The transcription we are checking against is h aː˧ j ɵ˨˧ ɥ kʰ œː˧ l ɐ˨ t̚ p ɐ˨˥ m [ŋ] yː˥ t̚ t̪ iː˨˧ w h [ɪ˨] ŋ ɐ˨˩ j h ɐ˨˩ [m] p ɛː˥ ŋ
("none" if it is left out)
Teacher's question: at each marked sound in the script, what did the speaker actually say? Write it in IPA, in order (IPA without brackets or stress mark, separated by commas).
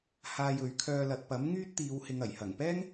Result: ŋ, ɪ˨, ŋ